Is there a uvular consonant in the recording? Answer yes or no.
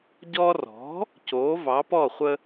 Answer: yes